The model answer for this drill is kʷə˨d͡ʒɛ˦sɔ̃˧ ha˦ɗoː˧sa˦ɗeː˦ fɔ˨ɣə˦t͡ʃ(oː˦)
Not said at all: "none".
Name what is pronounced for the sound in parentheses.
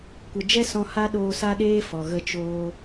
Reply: oː˦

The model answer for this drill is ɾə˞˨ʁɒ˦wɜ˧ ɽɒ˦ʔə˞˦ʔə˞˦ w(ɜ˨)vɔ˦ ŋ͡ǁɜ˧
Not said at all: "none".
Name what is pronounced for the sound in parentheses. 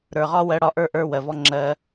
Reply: ɜ˨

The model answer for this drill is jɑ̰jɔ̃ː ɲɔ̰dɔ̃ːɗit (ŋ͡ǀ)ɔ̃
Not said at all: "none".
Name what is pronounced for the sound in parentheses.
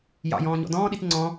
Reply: ŋ͡ǀ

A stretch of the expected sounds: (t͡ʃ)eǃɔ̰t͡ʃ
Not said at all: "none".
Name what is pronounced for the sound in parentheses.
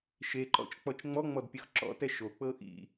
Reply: ʃ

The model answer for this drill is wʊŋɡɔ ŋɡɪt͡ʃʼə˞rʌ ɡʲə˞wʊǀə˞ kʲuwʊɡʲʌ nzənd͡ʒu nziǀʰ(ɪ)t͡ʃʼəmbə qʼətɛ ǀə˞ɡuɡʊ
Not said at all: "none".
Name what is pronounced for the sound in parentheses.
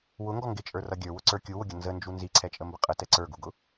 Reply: ɛ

